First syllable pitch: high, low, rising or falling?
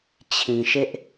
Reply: low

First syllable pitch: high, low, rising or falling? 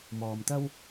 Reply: low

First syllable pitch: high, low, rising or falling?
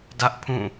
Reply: high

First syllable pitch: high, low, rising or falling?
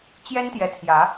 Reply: high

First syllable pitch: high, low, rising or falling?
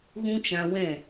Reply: high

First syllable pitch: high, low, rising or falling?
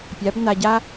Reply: rising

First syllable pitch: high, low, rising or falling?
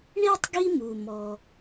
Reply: high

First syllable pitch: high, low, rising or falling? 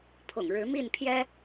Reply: low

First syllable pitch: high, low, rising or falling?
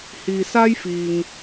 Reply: low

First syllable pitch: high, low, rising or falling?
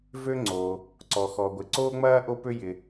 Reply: high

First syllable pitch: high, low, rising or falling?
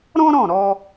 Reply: high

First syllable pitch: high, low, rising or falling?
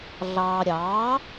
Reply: low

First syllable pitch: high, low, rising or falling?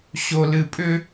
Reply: low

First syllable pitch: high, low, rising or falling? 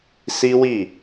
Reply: high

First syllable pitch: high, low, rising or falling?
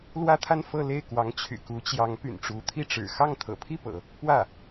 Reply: high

